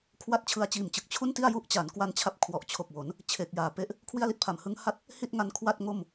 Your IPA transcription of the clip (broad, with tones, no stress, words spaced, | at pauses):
kʰwa˥˩t̚t͡ɕʰɯ˧a̯t͡ɕiː˨˩mt͡ɕɯ˨˩k̚ t͡ɕʰu˥˩nti˥˩a̯ ju˥˩ʔt͡ɕa˩˦n kwa˧nt͡ɕʰa˦˥p̚ kʰwɔ˨˩ʔt͡ɕʰo˨˩k̚wo˩˦n | t͡ɕʰe˨˩k̚jaː˨˩pe˦˥ʔ | kʰwi˥˩a̯li˦˥t̚pʰa˨˩m hɯ˦˥ŋha˥˩t̚ | hi˥˩t̚ŋa˦˥n kʰwa˥˩t̚ŋo˥˩m